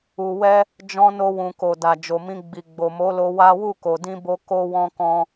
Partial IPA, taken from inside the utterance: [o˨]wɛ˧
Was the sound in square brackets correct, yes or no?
no